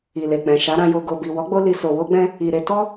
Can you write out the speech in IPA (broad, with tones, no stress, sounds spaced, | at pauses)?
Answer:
i˨ l e˨ k͡p ɛ̃˨ ʃ a˨˦ ɾ ã˧ j o˨ ɡ o˨ b i˨ w ɔ˨˦ ɡ͡b o˧ l i˧ s o˧ w o˦ ɡ͡b ɛ̃˦ | i˨ ɾ e˧ t ɔ˦